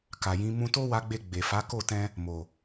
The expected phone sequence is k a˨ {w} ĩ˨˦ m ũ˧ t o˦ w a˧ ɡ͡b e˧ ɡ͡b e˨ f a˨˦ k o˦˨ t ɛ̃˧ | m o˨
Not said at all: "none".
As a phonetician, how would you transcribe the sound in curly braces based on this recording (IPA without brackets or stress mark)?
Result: j